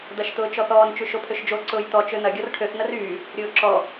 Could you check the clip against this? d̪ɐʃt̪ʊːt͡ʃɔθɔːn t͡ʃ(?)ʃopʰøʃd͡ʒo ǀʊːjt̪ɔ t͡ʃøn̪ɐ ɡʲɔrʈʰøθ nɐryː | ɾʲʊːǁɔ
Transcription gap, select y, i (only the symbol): y